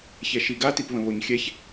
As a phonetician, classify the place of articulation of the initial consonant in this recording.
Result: palatal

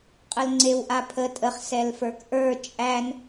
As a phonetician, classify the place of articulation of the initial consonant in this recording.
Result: uvular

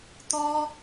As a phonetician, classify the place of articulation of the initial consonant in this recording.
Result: alveolar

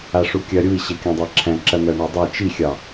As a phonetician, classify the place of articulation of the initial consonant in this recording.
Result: retroflex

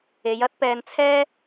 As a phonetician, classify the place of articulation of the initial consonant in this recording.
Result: palatal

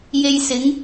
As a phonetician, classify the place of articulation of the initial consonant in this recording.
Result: palatal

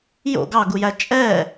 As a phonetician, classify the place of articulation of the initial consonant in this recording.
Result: palatal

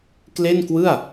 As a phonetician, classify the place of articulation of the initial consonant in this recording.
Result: velar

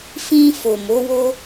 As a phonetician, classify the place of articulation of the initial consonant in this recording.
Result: labial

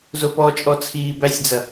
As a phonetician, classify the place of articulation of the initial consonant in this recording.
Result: alveolar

